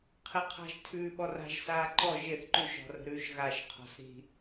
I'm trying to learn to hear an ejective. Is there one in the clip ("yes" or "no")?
no